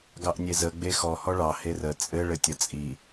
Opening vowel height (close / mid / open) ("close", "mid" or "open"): open